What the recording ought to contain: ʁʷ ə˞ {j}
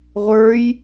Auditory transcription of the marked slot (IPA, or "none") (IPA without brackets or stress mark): j